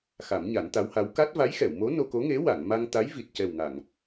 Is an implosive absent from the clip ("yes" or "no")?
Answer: yes